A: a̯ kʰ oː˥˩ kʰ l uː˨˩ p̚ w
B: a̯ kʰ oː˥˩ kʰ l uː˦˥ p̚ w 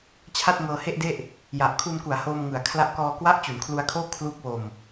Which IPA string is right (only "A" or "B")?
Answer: B